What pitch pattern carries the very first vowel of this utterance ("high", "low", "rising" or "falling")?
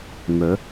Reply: rising